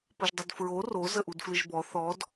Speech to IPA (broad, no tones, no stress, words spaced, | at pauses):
pəʒdˤʊdfɹo ro zəʔudflɨʒbɔ θɔd